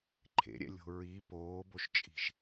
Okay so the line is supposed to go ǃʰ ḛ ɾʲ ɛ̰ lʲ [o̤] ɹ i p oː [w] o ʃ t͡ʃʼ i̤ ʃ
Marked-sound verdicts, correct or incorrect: correct, incorrect: b

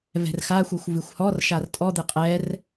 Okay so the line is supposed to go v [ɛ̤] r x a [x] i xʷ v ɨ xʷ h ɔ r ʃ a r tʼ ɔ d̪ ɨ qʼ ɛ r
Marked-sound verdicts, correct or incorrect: correct, incorrect: xʷ

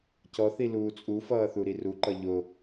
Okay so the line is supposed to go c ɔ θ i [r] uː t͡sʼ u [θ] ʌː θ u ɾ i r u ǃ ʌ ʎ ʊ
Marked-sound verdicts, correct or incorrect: incorrect: l, incorrect: f

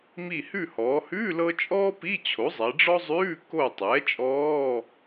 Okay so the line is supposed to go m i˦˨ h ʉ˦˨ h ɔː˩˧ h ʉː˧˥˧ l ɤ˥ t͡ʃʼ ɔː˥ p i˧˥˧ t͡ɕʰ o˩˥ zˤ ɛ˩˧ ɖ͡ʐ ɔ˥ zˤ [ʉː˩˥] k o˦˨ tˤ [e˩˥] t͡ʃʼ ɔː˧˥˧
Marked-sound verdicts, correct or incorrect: incorrect: ʉː˧˥˧, incorrect: ɛ˩˥

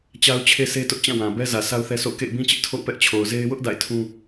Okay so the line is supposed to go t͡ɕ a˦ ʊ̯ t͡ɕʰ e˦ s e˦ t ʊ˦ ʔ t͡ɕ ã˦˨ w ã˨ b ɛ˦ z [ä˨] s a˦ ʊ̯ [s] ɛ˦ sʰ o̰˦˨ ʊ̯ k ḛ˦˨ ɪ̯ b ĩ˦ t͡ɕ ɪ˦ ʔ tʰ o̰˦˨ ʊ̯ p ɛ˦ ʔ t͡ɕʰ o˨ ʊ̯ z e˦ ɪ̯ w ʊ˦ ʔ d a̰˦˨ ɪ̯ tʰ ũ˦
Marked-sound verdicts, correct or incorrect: correct, incorrect: θ

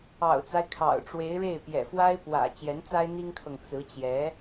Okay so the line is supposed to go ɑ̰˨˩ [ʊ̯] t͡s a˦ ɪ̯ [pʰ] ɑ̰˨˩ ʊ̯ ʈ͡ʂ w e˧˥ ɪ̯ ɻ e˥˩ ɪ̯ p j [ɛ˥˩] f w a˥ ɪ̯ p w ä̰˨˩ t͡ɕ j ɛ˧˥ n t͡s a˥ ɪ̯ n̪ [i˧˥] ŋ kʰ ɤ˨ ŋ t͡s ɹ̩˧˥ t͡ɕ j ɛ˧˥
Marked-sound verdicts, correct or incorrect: correct, incorrect: kʰ, incorrect: ɛ̰˨˩, incorrect: i˥

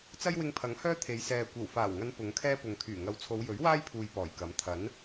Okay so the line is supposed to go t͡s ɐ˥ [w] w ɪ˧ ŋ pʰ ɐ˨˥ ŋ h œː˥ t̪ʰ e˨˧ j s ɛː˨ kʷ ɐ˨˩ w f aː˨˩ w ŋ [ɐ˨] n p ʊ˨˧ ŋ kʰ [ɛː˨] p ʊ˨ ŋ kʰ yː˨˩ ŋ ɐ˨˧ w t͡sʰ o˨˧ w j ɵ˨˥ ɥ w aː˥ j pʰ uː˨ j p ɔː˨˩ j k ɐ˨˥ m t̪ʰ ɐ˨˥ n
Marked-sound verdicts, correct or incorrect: incorrect: j, incorrect: ɐ˨˧, incorrect: ɛː˥

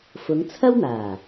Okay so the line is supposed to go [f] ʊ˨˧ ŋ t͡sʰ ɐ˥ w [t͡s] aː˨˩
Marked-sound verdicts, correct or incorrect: correct, incorrect: n̪

